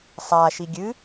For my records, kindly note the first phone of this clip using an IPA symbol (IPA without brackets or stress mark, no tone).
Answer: sˤ